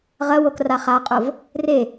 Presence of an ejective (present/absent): present